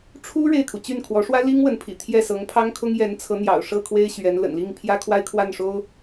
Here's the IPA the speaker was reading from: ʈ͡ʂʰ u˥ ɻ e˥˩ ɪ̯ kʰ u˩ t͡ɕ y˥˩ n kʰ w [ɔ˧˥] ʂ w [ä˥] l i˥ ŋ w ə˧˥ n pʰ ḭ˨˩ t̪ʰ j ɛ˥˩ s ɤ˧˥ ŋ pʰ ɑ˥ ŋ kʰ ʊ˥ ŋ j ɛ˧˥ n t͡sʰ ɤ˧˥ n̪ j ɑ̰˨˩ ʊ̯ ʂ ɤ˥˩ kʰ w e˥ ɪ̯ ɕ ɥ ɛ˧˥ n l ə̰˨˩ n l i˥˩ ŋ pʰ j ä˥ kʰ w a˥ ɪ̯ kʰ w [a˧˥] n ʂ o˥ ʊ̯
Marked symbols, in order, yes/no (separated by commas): yes, yes, no